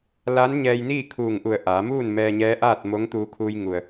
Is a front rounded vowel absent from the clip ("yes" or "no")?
yes